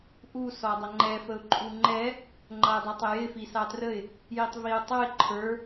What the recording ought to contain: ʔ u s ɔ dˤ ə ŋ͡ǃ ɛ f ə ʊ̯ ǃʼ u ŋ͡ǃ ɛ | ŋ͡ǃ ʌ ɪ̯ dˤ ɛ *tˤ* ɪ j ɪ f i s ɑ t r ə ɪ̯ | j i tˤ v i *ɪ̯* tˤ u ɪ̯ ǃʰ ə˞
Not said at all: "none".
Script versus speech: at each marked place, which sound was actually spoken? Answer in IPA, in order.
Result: tˤ, ʊ̯

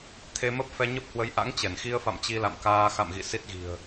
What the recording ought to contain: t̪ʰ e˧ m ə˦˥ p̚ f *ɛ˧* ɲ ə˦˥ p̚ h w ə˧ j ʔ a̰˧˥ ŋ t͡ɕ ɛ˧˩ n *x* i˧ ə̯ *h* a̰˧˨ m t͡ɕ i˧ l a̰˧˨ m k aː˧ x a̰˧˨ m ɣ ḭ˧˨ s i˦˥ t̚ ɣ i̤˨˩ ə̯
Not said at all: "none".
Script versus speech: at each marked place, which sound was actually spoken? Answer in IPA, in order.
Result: ɛ˧, x, f

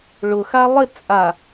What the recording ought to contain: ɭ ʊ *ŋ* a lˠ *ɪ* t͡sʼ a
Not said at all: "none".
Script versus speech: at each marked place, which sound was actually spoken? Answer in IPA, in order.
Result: x, ɪ

